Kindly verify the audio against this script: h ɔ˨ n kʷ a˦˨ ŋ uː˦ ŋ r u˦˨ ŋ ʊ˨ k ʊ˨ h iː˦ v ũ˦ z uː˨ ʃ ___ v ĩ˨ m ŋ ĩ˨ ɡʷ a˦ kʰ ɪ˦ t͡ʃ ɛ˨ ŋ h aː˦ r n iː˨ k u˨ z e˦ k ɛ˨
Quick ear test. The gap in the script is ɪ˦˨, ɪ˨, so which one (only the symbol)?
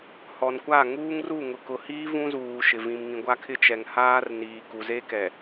ɪ˨